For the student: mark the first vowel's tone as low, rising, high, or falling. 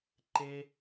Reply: high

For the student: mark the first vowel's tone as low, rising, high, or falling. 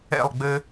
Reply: falling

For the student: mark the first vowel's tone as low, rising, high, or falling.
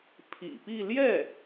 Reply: low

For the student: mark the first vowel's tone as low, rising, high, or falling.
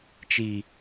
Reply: low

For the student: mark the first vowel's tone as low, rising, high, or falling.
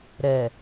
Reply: low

